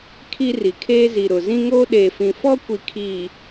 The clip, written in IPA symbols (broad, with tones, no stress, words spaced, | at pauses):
kʰi˦ri˨kʰeː˦ zi˨ɾʊ˨ zĩ˦ŋoː˦ ɗeː˨fĩ˨fɔ˦kʷi˨ kʰiː˨